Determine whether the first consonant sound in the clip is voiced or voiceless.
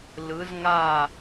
voiced